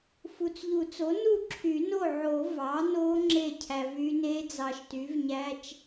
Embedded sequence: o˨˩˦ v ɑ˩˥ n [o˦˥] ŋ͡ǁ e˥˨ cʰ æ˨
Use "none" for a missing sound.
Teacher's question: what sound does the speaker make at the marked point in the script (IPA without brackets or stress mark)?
o˦˥